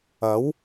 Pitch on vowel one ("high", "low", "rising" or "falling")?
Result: rising